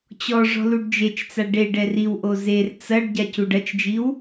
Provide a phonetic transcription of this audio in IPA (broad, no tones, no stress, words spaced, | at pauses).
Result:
t͡ɕɔ ʐɔ̤luɖd͡ʒet͡ʃt͡sa ɖeɖ ɛriwʔo zer t͡sɐɖ ɟacuɖɐt͡ʃd͡ʒiw